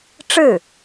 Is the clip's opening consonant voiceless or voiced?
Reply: voiceless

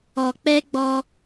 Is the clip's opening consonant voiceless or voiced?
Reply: voiceless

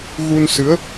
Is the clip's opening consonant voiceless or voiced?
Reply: voiced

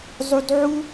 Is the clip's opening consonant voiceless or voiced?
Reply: voiced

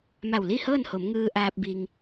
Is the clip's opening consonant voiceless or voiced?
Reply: voiced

